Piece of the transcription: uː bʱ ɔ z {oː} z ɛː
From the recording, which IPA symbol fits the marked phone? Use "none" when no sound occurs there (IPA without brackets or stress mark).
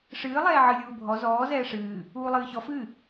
ɔː